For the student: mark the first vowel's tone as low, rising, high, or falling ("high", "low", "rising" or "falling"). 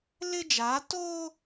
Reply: high